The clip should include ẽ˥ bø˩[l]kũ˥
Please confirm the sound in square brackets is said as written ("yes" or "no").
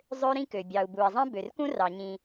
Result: no